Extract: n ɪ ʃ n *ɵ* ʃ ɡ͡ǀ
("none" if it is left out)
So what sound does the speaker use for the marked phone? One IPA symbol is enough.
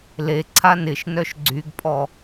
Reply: œ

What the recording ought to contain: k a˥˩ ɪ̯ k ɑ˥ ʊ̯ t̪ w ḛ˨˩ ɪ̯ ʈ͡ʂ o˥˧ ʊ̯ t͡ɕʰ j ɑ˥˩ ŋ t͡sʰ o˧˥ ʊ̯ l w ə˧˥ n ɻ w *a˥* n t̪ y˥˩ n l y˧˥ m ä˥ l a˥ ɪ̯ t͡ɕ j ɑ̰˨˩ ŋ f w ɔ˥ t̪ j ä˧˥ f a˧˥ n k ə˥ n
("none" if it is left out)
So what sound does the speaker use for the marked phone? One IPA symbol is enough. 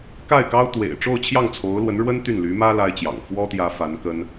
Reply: ə˥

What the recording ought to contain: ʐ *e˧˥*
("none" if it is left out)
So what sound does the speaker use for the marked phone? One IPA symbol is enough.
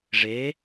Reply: e˧˥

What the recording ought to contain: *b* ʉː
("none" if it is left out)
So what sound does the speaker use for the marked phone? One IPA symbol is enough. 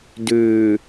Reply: d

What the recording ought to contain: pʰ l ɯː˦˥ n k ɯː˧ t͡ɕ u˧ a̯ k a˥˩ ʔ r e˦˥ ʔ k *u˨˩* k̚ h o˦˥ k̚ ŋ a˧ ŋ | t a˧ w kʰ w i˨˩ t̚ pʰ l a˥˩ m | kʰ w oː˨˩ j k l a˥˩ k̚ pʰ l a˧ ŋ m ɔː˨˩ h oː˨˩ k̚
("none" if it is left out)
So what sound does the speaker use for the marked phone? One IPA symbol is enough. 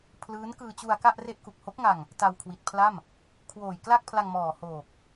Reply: u˨˩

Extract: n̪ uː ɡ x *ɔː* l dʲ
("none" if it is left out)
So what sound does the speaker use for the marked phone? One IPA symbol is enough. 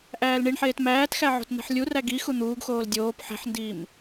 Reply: oː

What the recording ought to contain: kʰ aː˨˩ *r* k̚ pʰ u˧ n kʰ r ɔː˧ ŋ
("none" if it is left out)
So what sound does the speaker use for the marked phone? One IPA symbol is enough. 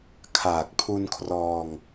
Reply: none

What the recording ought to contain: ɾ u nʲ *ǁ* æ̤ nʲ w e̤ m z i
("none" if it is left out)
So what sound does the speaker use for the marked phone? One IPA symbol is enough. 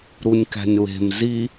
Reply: k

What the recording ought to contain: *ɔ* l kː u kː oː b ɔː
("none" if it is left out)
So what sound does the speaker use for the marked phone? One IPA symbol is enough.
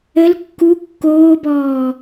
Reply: ə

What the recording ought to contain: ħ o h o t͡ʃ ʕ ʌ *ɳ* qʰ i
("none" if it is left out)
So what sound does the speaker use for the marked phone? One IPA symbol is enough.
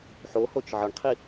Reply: ɳ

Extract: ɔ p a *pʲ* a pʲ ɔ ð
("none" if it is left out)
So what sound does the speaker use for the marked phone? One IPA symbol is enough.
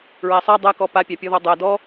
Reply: pʲ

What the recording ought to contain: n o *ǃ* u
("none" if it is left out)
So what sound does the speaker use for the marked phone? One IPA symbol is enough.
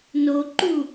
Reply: ǃ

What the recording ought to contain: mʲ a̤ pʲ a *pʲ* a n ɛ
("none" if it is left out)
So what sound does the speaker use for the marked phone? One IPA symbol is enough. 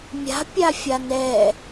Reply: fʲ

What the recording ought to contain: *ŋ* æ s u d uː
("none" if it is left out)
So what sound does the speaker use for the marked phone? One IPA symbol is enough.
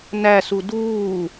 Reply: n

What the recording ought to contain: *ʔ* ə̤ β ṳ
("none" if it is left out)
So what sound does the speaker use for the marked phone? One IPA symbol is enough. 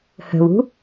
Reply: h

